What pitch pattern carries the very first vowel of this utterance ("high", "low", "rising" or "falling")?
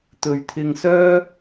low